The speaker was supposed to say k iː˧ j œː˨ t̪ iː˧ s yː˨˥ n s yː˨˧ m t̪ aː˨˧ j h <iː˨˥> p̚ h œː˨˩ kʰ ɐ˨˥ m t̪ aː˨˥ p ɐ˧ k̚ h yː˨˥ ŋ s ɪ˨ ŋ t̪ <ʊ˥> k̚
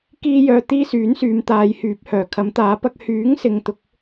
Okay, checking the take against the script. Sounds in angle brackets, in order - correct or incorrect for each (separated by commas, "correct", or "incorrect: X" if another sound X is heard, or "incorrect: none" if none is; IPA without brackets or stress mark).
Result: incorrect: yː˨˥, incorrect: ʊ˨˥